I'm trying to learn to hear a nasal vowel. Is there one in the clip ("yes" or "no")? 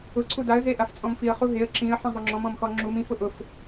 yes